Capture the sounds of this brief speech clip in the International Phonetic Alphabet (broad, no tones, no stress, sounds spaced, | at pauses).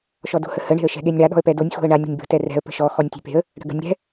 ʃ ɔ d o̤ h ə h ə ɳ e̤ ə̯ ʃ ɛ̤ ɠ e nʲ ɳ a ɗ ɔ̤ ə̯ p ɛ d o nʲ x o̤ ə̯ ɳ a nʲ ɽ ə̤ nʲ b ə̤ t ɛ r ɛ̤ ə̯ p ə̤ ʃ ɔ x ɔ nʲ tʲ e̤ p e̤ ə̯ | ɽ ə̤ ɡ ə̤ nʲ ɽ ɛ̤